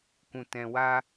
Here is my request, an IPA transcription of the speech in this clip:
kũ˧tɛ̃˧wa˦

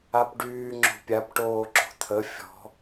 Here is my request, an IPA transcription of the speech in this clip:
apɖyː ŋ͡ǁo̤pʲap ʈoːǁo̤t̪ʰə fʲɔ̤

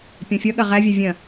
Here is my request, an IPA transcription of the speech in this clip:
pʲɔ̃fʲʌɠɐ ʁævʲa vʲɐ̃

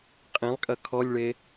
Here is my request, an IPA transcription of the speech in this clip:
qʼẽlˠkʼɐ kʰɔlʲɭe

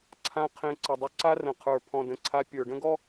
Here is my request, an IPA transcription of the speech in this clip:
ǀʰã˧ qʰẽ˧ǀə˨dˤʏ˦ ǀa˦rə̃˨qʰə˞˨ pʰɔ̃˨də̃˨ǀʰa˧ pʲə˞˨ɖə̃˦ɡɔ˦

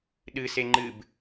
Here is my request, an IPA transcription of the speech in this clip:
ɗɨse ŋ͡ǃɨb

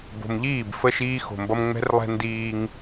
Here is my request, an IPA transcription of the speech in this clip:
bo̤˨mʎiː˦˨b fə˦ ʃiː˦xo̤˨mbʌ˦m ŋ͡mɛ̤˦rlˠɛ̤˦ ndiː˦ŋ

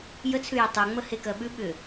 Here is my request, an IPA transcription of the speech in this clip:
jət͡sʰʉjʏ tˤʉŋ͡mə hekɜɓʉ ɓʏ

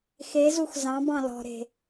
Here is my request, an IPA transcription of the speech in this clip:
xezux zɑ̃b ɑ̃lɔ̤ɾe̤

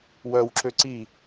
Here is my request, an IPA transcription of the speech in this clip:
wœwǁø ǀi

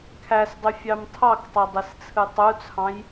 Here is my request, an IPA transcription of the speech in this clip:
kʰæsdˤy fʲɑmtʰɑktˤu dˤist͡sʰɯtˤut͡sʰɑ̃j

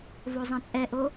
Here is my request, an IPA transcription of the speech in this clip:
vozˤɛ̃t͡sʼɛʔo

